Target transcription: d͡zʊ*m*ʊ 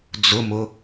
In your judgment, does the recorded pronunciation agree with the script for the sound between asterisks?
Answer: yes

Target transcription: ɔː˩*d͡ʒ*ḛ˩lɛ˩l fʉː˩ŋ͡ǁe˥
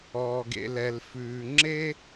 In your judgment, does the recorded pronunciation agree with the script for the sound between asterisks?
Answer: no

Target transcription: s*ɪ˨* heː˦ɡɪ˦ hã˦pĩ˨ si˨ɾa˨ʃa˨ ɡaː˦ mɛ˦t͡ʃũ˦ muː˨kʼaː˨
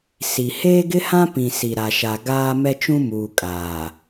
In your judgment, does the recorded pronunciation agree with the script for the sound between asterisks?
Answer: no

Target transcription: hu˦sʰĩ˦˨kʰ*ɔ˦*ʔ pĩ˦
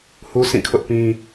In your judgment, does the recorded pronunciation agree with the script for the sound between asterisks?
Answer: no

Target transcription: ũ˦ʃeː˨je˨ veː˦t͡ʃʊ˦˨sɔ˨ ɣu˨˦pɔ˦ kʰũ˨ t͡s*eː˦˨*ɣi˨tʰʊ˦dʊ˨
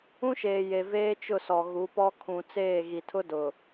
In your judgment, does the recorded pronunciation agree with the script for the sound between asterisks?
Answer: yes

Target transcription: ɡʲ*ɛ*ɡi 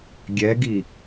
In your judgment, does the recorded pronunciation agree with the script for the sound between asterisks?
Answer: yes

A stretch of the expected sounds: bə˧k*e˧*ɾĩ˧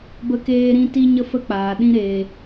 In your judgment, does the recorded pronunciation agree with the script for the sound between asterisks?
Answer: no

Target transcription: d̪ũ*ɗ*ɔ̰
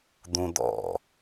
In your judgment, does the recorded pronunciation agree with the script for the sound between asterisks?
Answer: no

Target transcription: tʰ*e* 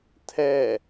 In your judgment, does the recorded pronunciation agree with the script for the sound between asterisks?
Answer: no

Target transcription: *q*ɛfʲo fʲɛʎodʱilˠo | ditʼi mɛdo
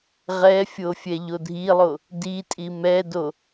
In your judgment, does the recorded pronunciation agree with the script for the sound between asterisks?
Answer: no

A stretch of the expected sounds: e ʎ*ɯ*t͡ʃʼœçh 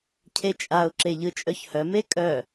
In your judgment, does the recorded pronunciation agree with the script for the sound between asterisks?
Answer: yes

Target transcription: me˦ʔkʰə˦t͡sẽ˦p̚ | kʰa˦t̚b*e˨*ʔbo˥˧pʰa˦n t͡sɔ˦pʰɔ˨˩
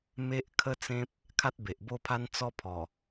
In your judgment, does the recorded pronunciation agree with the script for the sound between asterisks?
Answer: yes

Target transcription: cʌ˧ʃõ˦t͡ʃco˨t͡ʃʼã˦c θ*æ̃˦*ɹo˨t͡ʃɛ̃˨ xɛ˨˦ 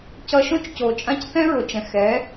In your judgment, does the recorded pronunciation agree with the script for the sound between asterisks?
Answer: no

